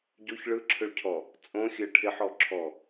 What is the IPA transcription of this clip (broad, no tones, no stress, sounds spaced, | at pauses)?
ɟ o ç ɭ ɯ ǁʰ ʏ ɭ cʰ ɔ | t͡sʼ õ xʲ ɜ ʈʰ ɪ ħ ɔ ǁʰ ɔ